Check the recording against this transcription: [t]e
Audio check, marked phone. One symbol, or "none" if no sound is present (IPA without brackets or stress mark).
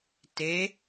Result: t